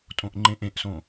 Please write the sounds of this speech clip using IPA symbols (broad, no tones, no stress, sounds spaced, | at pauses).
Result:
tʼ õ ʔ ŋ͡ǃ ẽ ʔ ẽ ʔ s õ